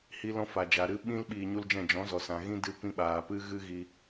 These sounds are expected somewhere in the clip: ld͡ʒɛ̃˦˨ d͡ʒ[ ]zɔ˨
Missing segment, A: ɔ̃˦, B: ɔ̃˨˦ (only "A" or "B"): B